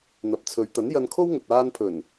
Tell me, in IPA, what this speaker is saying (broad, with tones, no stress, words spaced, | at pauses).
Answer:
n̪ɐ˨p̚t͡sʰɵ˨˧ɥt̪ɐ˨˥n jɐ˧nkʰo˥wŋɵ˨t̚ aː˧n pʰɵ˨˩n